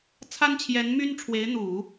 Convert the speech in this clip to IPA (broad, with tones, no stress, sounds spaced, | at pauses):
t͡sʰ a˥ n t͡ɕʰ j ɛ˧˥ n m y˥ n ʈ͡ʂʰ w e˧˥ ɪ̯ n̪ u˨˩˦